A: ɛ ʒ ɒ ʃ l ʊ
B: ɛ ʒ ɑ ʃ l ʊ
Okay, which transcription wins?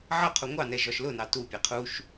A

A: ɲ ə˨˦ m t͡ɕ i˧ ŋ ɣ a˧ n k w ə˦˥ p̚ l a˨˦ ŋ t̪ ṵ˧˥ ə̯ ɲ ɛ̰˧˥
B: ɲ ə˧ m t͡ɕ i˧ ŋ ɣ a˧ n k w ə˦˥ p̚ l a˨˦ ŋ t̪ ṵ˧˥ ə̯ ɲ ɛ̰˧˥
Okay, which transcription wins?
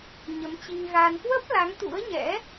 A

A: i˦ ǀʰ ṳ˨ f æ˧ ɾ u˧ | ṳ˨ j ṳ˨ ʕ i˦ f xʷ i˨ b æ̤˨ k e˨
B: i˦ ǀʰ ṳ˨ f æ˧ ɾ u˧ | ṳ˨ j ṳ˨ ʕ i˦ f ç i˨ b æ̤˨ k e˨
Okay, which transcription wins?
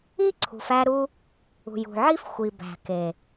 A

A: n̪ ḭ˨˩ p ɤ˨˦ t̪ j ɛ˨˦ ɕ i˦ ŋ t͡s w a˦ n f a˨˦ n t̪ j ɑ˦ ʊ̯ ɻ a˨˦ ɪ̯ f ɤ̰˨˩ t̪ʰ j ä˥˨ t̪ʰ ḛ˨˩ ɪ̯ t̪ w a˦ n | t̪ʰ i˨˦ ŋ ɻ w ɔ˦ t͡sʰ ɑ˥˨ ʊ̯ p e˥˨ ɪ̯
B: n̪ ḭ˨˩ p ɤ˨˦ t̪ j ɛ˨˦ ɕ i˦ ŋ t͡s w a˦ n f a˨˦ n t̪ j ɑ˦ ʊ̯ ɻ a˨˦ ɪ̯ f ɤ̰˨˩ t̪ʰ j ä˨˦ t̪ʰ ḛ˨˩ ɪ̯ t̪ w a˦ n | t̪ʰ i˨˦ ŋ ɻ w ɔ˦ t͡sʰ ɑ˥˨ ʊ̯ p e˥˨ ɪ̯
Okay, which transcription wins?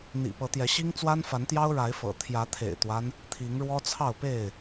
B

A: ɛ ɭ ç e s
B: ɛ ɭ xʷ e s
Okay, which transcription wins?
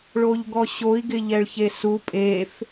A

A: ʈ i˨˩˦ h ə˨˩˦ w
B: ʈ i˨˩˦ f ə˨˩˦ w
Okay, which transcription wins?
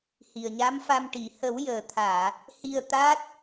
A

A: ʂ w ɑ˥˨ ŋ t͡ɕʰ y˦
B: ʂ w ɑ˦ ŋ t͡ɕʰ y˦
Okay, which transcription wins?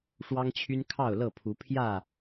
B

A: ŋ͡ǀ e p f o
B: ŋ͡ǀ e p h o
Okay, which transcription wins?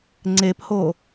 B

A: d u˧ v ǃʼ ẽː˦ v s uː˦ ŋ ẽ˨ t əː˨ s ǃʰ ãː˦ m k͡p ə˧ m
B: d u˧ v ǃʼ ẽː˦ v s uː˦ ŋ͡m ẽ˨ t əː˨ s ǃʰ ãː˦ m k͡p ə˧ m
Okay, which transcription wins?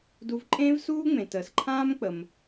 B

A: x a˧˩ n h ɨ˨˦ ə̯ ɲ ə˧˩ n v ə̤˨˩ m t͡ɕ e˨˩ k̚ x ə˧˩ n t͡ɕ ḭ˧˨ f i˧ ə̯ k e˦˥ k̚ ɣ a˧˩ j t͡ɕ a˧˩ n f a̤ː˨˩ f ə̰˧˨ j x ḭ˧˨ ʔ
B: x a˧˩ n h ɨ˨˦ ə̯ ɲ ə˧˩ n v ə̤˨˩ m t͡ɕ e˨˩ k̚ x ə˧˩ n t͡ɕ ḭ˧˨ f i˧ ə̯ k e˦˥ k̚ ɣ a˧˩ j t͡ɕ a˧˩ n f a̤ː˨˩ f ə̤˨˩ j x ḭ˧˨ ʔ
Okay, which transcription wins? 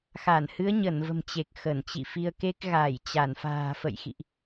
A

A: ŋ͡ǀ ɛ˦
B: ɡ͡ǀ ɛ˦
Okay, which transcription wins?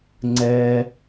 A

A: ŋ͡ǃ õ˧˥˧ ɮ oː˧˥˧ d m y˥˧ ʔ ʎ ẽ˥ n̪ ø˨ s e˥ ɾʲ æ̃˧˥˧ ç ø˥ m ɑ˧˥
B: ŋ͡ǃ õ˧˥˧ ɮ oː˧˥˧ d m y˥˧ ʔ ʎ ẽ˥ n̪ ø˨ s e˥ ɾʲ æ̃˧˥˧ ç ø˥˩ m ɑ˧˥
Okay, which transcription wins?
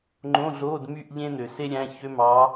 A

